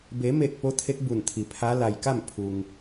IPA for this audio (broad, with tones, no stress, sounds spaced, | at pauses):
b e˩˧ m e˧˩ k̚ p o˧˥ t̪ʰ e˧˥ k̚ b u˧˩ n t̪ʰ i˩ pʰ a˧˥ l a˩ j k a˥˨ m pʰ u˧ ŋ